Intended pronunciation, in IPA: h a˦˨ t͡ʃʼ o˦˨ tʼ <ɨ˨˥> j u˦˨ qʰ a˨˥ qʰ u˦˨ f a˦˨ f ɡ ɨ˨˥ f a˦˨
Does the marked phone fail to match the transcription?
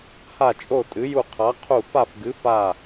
no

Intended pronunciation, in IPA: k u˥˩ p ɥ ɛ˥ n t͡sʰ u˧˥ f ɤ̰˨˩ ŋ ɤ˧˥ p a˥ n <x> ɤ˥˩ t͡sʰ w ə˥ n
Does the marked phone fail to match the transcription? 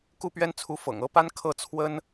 yes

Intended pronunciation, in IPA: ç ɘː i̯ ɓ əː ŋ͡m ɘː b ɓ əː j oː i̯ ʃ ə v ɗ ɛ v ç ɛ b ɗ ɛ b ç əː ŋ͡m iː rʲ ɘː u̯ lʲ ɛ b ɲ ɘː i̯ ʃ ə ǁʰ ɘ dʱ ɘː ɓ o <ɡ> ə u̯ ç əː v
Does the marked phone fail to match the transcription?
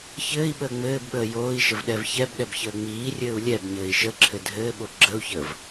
yes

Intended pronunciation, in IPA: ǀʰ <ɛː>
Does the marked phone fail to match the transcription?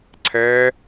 no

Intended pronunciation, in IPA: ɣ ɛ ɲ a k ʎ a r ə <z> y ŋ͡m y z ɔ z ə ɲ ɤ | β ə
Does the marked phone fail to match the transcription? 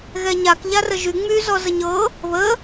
yes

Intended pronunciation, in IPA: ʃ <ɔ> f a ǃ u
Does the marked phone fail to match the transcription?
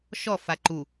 no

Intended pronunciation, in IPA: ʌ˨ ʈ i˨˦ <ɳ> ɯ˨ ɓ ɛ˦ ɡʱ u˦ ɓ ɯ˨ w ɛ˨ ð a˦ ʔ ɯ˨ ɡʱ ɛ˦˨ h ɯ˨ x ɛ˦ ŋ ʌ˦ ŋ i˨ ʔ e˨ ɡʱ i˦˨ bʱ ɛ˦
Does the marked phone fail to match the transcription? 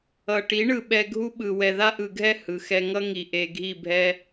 no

